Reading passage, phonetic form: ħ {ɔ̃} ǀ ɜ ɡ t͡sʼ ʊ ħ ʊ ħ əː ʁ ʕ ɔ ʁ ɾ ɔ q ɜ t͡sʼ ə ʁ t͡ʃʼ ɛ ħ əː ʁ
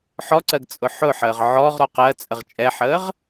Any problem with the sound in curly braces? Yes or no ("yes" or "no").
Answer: yes